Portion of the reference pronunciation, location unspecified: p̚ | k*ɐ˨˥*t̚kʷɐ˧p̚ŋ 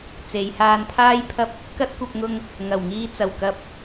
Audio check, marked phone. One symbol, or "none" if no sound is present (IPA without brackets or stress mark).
ɐ˥